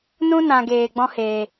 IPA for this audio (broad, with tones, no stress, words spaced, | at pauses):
nũ˦nã˨ ɡeː˨ ɡ͡bɔ̃˦heː˨